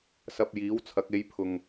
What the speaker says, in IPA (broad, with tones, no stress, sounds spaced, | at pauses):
s ɐ˧ p̚ j iː˨˥ w t͡sʰ ɐ˨˥ k̚ e˨˧ j pʰ ʊ˨ ŋ